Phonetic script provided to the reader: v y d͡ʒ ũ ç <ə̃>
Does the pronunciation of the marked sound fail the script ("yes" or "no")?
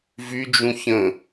no